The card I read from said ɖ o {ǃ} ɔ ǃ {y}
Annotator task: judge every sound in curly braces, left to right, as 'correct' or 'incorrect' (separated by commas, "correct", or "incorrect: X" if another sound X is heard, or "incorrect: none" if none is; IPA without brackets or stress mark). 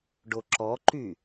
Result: incorrect: ǁ, correct